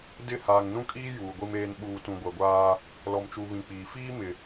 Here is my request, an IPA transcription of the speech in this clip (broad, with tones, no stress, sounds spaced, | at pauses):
d ɪ˦˨ h aː˨ ŋ n ũ˦ kʼ iː˦ j uː˨ ɡʷ i˦ m eː˦ n ɓ uː˨ t ũ˨ ɡʷ ɛ˨ ɡʷ aː˦ | l ɔ˨ m t͡ʃ u˨ β ĩ˨ k͡p iː˨ f iː˦ m ɪ˨